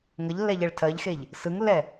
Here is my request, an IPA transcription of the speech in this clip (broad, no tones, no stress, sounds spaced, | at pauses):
ŋ ə ʎ lː ɛ ʎ ɛ ɭ tʰ ɜ ʎ x e ʎ | s ɯ ŋ lː ɛ